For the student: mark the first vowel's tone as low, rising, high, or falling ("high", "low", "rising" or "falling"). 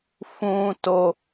low